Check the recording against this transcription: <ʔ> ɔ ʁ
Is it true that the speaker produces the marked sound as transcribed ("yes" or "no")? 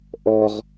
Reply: yes